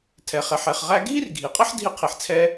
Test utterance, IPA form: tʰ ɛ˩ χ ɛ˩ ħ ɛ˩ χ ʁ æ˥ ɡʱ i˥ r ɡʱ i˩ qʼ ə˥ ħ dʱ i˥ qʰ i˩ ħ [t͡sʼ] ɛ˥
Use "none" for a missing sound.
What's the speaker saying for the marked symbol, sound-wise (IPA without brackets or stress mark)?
t͡sʰ